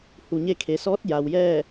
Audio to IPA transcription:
h u˩ ɲ e˧ kʰ e˩ s ɔː˧˥ t̚ j a˩ w j ɛː˥˨

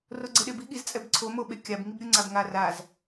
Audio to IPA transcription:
r o ɡ͡ǀ ɛ ɗ e b i ɠ i z t͡sʼ ɛ b ǀʰ o m o ɓ e kʲ a b ŋ i b ɾʲ u ŋ͡ǀ a b ŋ a r a z

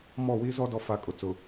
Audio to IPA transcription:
m ɔ˦˨ w i˦ z ɔ˦ d ɔ˦ f a˦˨ kʼ ʊ˨ t͡s ʊ˨

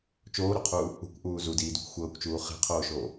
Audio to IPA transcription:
t͡ʃ oː ɾ o qʰ uː | ṳ kʷ ʔ uː z u d iː d u kʷ xʷ ɤː kʷ t͡ʃ uː χ e̤ qʰ oː ʃ oː

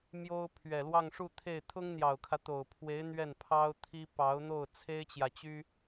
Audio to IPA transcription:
m j o˥ ʊ̯ pʰ ɥ ɛ˨˩ l w ɑ˥˧ ŋ ʂ u˥˧ t̪ʰ e˥˩ ɪ̯ t̪ʰ ʊ˥ ŋ n̪ j ɑ˨˩ ʊ̯ kʰ ä˦ t̪ o˨˩ ʊ̯ pʰ w e˧˥ ɪ̯ n̪ ɥ ɛ˥˩ n pʰ ɑ˥ ʊ̯ t̪ʰ i˥ p ɑ˧˥ ʊ̯ n̪ o˥˩ ʊ̯ t͡sʰ e˥ ɪ̯ t͡ɕ j ä˨ t͡ɕ y˥

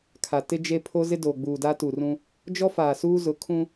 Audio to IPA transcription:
kʰ a˨ t ɪ˦ d͡ʒ e˦ pʰ o˦ z ɪ˦ d oː˨ ɡ͡b uː˨ d a˦ t u˨ r ũ˦ | d͡ʒ ɔ˦ f aː˨ s uː˦ z ʊ˨˦ kʰ ũ˦

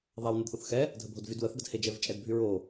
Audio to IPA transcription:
ðˤ a w n e d θ o θ x ɛ | dʱ ə bʱ o d v y d w ə θ ɡ ə d h e d͡ʒ ɛ v t͡ʃʼ ɛ d bʱ y ɹ o

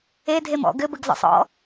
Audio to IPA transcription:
e dʱ e m ɔ̰ ɡ ɘ b ɘ ɡ z ɔ̰ sˤ ɔ̰

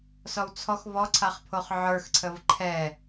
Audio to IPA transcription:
s ɔ w t͡sʰ ɔ x v ɔ ǀʰ a χ pʰ o χ ʕ ə˞ x ǀʰ ə v ǃʰ ɛ

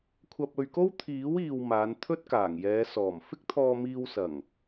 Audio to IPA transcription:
kʷʰ ɐ˧ p̚ ɵ˧ ɥ k o˥ w t̪ʰ iː˨˥ w iː˨ w m aː˨˧ n t̪ʰ ɵ˥ t̚ k aː˨˩ ŋ j ɛː˨˧ s ɔː˨˩ m f ɪ˥ k̚ t̪ʰ ɔː˧ m iː˧ w s ɐ˨˩ ŋ

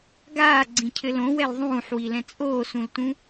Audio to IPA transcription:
ɡ aː ɡ͡ǀ ĩ cʰ ɘ l õ w ɛ l ðˤ ũː ħ w i l ɛ̃ t͡sʼ oː s ũ l t ũ

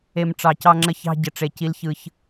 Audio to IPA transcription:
e˨ m ʈ͡ʂ ɑ˨ c ɑ˦ ŋ͡ǁ ə˦ ç ɑ̤˦ ɟ ə˨ ʈ͡ʂ e˨ c i˦ l ç ɯ˦ ç

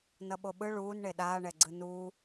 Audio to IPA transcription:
n ʌ ɓ o ɓ ɯ ɭ uː n ɳ e ɗ aː ɳ ɛ ɡ͡ǀ ɯ n uː

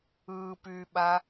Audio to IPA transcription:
ɯː p yː ɓ a

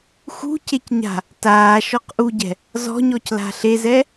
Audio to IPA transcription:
x ṳ c e c ɲ a̤ | t aː ʃ ɔ q ʔ u ɟ ɛ̤ | z ɔ̤ ɲ ɔ c l a̤ ɬ e z ɛ

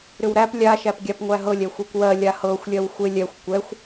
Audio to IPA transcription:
ɾ ʏ w ɾ æ p lʲ a ʃ æ p ɡʲ a p ŋʷ æ ɦ ɤ lʲ ɛ xʷ e kʷ w ɜ lʲ a h ɤ xʷ lʲ ɜ w xʷ e lʲ ɛ xʷ kʷ ɛ xʷ

